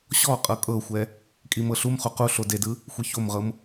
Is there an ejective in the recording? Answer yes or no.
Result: yes